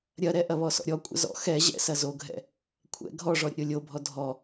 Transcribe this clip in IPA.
ɾʲ ɐ ɾ ɛ ʔ ɐ β ɔ s ɔ̰ ɾʲ ɔ kʷʼ ə̰ z ɔ̰ x ɛ ʑ ɛ̰ s ɐ z o ɡʱ ɛ̰ | kʷʰ ɛ̰ ɡʱ ɔ ʐ ɔ ɾʲ ə̰ ɾʲ o lʲ o bʱ ɔ dʱ ɔ

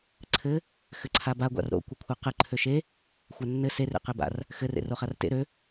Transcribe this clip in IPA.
ǀʰ ɘ | x ɘ ǀʰ a b a ɡʷ a̰ r ɾ o̰ kʷ ɘ kʷʰ ɜ q ɘ ǃʰ ø ʃ e | xʷ a nː ɘ s e r ḛ q e b a̰ r | x ɘ r ḛ r o χ a r t ḛ ɾ ø

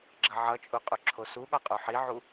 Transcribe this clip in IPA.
ɡ͡ǁ ʌ ʕ ʌ t͡ʃʼ u qʼ u ǁʰ o s u ɠ ɒ qʼ o ħ i ʕ u

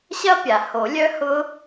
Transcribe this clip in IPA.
ɕ ɐ˦˥ pʲ a˩ h o˨˩˦ lʲ œ˦˥ h ʊ˦˥

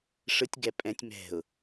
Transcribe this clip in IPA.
ʂ ɯ tʲ ɡ ɛ pʼ ɛ̃ tʲ m ɛ̤ ʊ̯

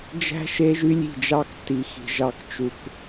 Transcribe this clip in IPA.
d͡ʒ æ̤˦ ʃ e˦ ʒ y˦ lʲ i̤˦˨ d͡ʒ ɑ˦ k tː i˨ x i̤˨ ʒ ɑ˦ k t͡ʃ u˧ k

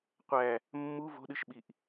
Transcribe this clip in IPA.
qʷ æ | mː u v o̤ ɗ ɨ ʃ ɓ i ʔ

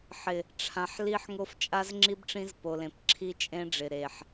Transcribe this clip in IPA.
ħ ɪ˨ | ʈ͡ʂʰ ã˨ ħ l i˦ ħ ŋ o˦ f t͡ʃʼ a˦ z ŋ͡ǁ i˦ b ʈ͡ʂ ĩ˦ z p o˨ l ẽ˨ p ǁʰ i˦ t͡ʃʼ ẽ˦ ɖ͡ʐ ɪ˨ ɾ e˨ ħ

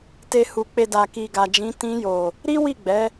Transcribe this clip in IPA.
t e˨ h u˨ k͡p e˨ d a˨ k i˨ ɡ a˨ d͡ʒ ĩ˨˦ t ĩ˧ j o˨ | ɾ i˦ w i˦˨ ɡ͡b ɛ˨˦

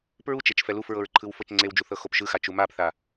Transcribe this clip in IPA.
p ɹ u t͡ʃ e t͡ʃ f ɛ l u f ɹ ɤ ɹ ǃʰ ɯ w f ɤ t͡ʃ ŋ͡ǀ e w d͡ʒ u θ ɤ x o p ʃ ɯ x a t͡ʃ u m a p θ a

